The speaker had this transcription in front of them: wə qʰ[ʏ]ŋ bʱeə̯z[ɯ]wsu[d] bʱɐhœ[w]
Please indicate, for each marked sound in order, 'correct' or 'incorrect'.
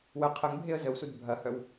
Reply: incorrect: ə, incorrect: ə, correct, correct

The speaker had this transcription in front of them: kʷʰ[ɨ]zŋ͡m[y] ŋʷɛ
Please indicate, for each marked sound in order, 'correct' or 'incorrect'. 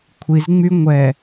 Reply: incorrect: i, correct

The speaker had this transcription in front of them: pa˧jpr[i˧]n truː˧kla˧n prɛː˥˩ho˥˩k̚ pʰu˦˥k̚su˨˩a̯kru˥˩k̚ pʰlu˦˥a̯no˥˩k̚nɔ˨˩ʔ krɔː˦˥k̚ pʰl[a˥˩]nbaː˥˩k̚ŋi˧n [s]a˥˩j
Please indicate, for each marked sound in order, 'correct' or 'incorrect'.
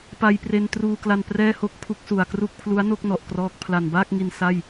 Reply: incorrect: e˧, incorrect: a˨˩, correct

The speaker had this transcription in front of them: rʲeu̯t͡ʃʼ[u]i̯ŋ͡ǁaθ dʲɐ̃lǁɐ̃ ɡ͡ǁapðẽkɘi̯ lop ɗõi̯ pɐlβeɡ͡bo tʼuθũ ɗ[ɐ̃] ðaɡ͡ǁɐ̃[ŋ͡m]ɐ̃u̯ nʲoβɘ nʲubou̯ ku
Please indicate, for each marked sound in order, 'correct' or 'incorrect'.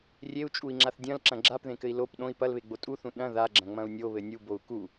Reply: correct, correct, correct

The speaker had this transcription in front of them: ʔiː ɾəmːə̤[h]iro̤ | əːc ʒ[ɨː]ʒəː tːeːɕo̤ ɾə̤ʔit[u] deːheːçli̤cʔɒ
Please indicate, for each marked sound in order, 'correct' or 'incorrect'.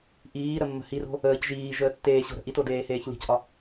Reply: correct, incorrect: iː, incorrect: o

